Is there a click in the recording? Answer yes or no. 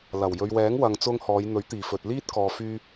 no